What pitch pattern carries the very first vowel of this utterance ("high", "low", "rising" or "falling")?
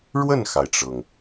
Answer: falling